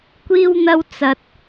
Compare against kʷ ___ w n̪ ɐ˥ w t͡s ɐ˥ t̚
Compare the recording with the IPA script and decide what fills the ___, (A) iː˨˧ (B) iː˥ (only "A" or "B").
B